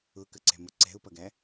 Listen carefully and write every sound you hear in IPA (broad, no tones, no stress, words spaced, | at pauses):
ʊkəǀɛ̤mʊ ǀɛ̤ʊ̯pʌɡæ